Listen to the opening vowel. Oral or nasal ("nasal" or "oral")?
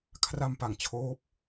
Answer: oral